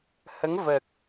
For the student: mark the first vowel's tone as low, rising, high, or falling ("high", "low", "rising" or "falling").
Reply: rising